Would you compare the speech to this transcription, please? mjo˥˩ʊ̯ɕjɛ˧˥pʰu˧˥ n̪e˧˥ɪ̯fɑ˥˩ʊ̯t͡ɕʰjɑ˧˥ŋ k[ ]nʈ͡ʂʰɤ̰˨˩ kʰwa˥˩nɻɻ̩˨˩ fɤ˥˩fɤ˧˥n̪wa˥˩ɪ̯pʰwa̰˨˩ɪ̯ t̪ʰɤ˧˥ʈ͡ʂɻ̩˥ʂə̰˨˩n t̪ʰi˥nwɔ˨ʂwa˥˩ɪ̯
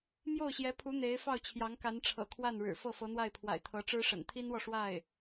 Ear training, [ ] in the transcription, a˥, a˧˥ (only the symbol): a˧˥